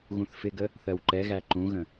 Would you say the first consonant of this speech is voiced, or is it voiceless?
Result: voiced